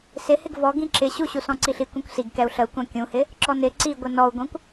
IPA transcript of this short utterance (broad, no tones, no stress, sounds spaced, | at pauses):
s ɪ h ɪ ɡ v ɔ ɡ ĩ ǁ ɪ ɕ u ɕ u s ɔ̃ ǀ i ɬ i kʷ ĩ kʷ s i ɡ k ɛ u̯ ɬ ə u̯ kʷ æ̃ kʲ ũ h ɪ | ǁ ɔ n ɪ ǀ i ɡʷ ɪ n ɔ u̯ ɡʷ ɛ̃ kʷ